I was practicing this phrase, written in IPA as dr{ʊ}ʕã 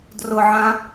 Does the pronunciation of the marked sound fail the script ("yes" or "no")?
no